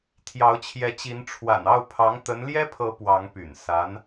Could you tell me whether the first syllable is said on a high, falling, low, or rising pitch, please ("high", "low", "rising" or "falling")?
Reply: rising